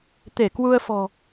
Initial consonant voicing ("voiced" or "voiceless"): voiceless